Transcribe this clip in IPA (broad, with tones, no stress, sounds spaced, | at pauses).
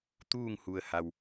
t̪ uː˥˨ ŋ h u˩ ə̯ h a˩ w